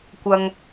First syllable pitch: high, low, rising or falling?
low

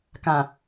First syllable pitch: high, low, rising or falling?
low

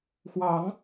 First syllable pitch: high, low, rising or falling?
rising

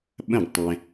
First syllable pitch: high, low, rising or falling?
falling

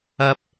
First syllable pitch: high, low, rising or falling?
high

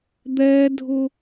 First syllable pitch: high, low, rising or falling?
high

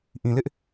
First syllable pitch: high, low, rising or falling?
low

